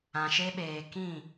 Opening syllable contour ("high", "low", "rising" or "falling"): low